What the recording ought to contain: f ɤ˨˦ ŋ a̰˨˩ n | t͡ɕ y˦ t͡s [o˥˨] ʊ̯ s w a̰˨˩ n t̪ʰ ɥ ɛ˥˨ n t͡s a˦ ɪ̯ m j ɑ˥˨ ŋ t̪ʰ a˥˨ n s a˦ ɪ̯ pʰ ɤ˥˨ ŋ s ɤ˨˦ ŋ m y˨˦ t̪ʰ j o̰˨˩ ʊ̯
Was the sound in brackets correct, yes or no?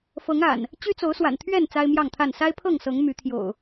no